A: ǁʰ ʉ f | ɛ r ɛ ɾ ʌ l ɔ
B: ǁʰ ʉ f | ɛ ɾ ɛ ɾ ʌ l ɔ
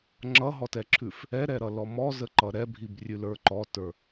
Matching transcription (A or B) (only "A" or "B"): B